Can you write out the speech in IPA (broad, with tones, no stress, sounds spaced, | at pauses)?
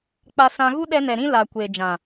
k͡p a˧ s ã˧ ɣ u˦ ɗ ɛ˧ n ɛ˨ ɾ ĩ˦ l a˨ kʷ e˨ d͡ʒ ã˨